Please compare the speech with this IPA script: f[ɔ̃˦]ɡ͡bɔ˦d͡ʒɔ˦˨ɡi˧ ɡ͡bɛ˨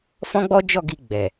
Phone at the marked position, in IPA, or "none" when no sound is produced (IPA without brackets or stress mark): ɔ̃˦